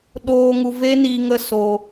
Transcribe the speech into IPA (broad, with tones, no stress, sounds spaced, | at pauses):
ɗ oː˧ ŋ u˧ v e˦ n i˧ ŋ ə˦ s o˧